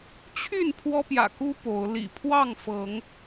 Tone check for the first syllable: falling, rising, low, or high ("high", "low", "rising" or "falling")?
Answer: falling